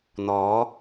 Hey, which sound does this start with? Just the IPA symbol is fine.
n̪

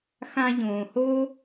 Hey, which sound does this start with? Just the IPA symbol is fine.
x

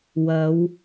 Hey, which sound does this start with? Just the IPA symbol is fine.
w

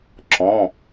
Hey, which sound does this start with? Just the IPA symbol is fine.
ǁ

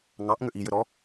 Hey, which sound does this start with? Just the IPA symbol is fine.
ŋ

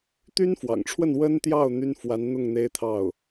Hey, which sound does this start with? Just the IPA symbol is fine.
t̪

